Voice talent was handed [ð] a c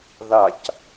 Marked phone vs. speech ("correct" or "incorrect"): correct